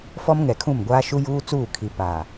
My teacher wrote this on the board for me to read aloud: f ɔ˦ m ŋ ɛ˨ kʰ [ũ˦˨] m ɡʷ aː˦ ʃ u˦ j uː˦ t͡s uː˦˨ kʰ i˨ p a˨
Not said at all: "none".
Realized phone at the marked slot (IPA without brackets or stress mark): ũ˦˨